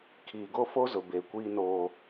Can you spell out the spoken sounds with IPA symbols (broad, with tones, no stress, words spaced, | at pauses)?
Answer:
kʰiː˨ɡo˦ fo˦zʊ˨beː˨ kʷiː˦noː˦